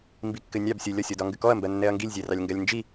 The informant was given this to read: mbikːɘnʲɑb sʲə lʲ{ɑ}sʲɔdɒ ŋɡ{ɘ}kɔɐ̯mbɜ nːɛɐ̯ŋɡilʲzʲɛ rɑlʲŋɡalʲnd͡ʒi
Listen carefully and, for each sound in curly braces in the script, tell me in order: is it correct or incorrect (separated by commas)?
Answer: incorrect, correct